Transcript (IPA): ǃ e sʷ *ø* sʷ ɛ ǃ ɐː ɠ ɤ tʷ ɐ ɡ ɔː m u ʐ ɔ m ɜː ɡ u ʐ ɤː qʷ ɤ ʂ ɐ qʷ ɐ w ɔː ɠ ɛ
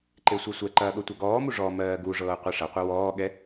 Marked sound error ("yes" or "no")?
yes